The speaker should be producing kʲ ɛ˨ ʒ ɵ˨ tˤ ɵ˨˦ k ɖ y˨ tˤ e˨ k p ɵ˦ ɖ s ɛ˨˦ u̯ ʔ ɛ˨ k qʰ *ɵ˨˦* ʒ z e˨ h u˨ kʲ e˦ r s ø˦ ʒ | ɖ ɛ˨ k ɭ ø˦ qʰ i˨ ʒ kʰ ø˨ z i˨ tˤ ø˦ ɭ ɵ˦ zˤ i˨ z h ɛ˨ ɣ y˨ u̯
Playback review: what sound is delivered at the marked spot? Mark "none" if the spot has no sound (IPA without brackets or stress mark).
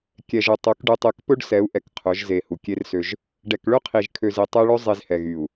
ɵ˨˦